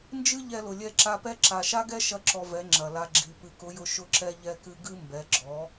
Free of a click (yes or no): no